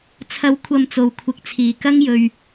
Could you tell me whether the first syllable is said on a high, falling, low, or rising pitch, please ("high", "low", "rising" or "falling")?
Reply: rising